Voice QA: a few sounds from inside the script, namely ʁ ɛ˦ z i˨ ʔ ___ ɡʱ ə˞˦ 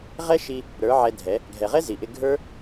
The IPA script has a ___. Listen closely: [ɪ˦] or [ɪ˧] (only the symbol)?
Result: ɪ˧